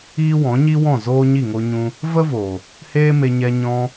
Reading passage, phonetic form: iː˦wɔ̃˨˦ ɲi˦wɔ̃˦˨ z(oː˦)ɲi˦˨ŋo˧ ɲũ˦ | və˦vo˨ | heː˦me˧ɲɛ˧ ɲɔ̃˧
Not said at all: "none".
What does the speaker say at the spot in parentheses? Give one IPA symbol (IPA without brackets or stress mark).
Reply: oː˦